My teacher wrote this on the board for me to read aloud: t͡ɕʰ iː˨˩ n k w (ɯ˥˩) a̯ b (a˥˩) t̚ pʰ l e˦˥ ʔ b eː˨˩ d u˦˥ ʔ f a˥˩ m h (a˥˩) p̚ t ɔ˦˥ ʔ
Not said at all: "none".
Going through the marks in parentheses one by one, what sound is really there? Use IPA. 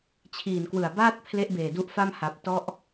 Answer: ɯ˨˩, aː˥˩, a˨˩

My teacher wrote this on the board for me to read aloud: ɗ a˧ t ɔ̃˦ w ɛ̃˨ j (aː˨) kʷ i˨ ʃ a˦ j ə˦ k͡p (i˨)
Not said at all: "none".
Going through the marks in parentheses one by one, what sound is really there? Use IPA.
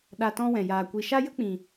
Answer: aː˨, ĩ˨

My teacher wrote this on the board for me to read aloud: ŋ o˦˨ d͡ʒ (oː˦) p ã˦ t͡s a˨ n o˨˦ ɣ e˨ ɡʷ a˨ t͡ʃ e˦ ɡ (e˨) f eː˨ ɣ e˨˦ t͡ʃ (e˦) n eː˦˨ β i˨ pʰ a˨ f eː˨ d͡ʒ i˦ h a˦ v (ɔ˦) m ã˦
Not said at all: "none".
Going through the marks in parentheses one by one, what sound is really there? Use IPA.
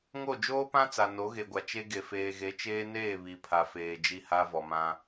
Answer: oː˦, e˨, eː˦, ɔ˨

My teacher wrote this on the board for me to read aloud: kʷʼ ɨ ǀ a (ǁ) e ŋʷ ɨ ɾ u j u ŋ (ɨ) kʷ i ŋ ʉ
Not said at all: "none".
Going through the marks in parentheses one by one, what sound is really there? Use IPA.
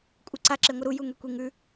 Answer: ǁ, e

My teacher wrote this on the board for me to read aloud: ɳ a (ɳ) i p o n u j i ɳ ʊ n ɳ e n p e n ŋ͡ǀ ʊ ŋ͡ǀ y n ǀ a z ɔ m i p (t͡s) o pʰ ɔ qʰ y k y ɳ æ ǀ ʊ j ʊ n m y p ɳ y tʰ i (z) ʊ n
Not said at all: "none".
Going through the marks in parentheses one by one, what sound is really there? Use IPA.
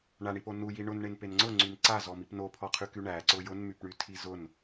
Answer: ɳ, n, z

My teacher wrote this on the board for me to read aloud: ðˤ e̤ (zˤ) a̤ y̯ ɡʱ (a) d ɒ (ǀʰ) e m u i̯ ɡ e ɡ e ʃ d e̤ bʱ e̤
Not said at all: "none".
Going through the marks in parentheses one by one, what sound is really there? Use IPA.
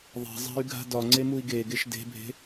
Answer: zˤ, a̤, ŋ͡ǀ

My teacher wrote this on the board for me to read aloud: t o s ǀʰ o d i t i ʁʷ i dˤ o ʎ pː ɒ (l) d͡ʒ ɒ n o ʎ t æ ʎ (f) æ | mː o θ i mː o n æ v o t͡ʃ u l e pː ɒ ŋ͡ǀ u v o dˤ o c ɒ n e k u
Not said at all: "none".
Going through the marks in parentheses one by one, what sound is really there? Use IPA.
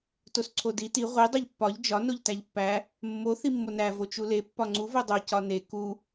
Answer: ʎ, pː

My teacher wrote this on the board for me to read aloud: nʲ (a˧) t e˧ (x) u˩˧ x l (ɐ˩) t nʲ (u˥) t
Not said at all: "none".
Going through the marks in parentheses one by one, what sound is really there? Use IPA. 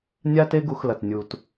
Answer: a˧, ɡ, ɐ˩, u˩

